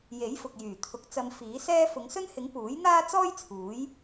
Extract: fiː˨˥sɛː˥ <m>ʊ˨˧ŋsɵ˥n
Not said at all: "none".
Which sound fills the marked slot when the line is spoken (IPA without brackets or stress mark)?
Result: f